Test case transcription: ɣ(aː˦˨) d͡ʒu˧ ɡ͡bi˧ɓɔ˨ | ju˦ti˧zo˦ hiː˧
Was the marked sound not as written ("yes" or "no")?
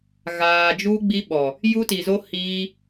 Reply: yes